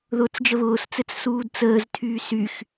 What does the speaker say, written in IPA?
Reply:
ð ʊː t͡s d͡ʒ ə β ʊː s t͡s ɘ t͡s s uː d t͡s əː z tʰ yː s y x

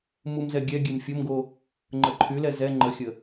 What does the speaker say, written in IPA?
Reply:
m u m z ɛ ɡʲ ɛ ɡʲ e m fʲ o m ɡ o | ŋ͡ǃ ə ǃʰ y l ɛ z ɛ ŋ͡ǃ ə xʲ ə

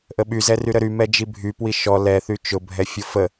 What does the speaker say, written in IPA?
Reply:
ʔ ə ɓ y z ɛ r y ɾ ə ɾ y m ɛ d͡ʒ i bʱ y p w i ʃ ɔ l ɛ θ y t͡ʃ ʊ bʱ ɛ fʲ o f ə

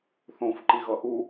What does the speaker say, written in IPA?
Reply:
θ õ f ǃ i ɣ ʌ ʔ u

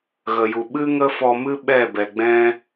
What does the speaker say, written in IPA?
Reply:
ɣ ə˨ j u˨ ɓ ɨ˦ ŋ ə˦ f ɔ˧ m ɨ˦ ɓ ɛ˦˨ b ɛ˨ ɡ͡b ɛ̃˦

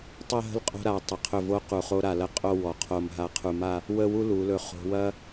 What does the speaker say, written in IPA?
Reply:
tˤ ɐ˥˧ ɦ ə̤˥˧ l qʼ o̤˧ ɾ a˩˧ tˤ ə˩˧ qʰ ɵ˧˩ v o˧ q u˧˩ χ o˥ ɾ a˧˩ l ɐ˥˧ qʼ o˥˧ w ɔ˩˧ qʰ o˧˩ m ɦ a˧ qʰ u˧˩ m a˥˧ | w ə˥˧ w u˥ l u˩˧ l ɵ˧˩ χ o̤˧ w ɐ˥

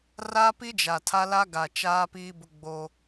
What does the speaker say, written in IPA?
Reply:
r aː˦ p i˦ d͡ʒ a˨ tʰ a˦ l a˦ ɡ a˨ t͡ʃ aː˦ p iː˦ b ʊ˦ ɡ͡b o˦

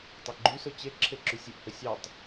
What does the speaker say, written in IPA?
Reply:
tˤ æ ɡ͡ǃ y s ɵ t͡ɕ e ǁʰ e ǁ y sʲ ɵ ʔ h ɵ sʲ ɑ tˤ

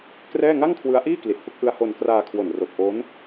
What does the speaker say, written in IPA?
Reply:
k r ɛː˥˩ ŋ a˥˩ ŋ kʰ w ɯ˦˥ a̯ ʔ iː˥˩ k l i˨˩ t̚ f ɯ˦˥ k̚ ʔ ɯ˦˥ a̯ h o˧ n k r aː˧ kʰ w o˨˩ n r o˨˩ k̚ ʔ o˦˥ n

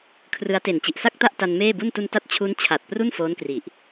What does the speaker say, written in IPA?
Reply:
kʰ r ɯ˦˥ a̯ t e˨˩ n t͡ɕ i˨˩ ʔ s a˥˩ k̚ t a˥˩ ʔ t a˧ n m eː˥˩ b u˥˩ n t u˧ n t a˦˥ t̚ t͡ɕʰ u˦˥ n t͡ɕʰ a˨˩ t̚ p r u˥˩ n f oː˦˥ n k r i˨˩ ʔ

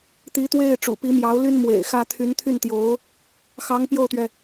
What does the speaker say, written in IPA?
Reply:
t̪ i˧˥ t̪ w e˥˩ ɪ̯ ʈ͡ʂ ṵ˨˩ p i˧˥ m j ɑ˧˥ ʊ̯ l y˥ n m w ḛ˨˩ ɪ̯ x ä˥ t̪ʰ y˧˥ n t̪ʰ y˥˩ n t̪ j o˧˥ ʊ̯ | x ɑ˧˥ ŋ p j o˥˩ ʊ̯ t̪ ɥ ɛ˩

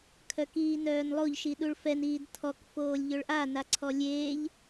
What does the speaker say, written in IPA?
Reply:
kʰ œ k iː n œː n lˠ o ʎ ʃ i ɗ u ɭ f ɛ n iː d tʰ ɔ k f oː lʲ ʎ ø ɭ ʔ a n a ǀʰ ɔ lʲ eː ʎ

